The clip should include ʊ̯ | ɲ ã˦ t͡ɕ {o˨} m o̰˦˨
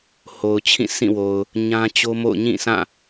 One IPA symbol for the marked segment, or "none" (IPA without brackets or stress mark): o˦